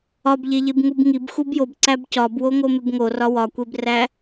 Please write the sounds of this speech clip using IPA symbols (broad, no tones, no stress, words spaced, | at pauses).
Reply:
ɒbʎeʎebŋub ŋibxub jobǀæb cɒbwoŋomeb ŋorɒ wɒkʷebræ